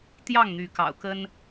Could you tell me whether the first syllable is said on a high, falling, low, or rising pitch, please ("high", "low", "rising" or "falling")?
falling